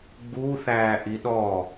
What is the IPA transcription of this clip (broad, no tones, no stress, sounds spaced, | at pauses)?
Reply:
ɡ͡b u θ æː ʔ i ɗ ɔ